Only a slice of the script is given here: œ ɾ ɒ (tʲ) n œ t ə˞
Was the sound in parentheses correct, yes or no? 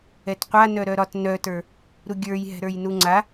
no